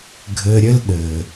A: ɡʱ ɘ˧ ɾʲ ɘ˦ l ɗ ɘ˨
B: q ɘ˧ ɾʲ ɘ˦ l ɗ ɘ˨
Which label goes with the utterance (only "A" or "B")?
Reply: A